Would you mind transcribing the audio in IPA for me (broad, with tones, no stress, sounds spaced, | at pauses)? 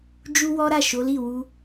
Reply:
d͡ʒ u˦ w ɔ˦ ɾ a˦˨ ʃ o˨˦ l i˦˨ w u˧